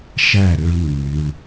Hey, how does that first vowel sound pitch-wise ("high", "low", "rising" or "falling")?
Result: falling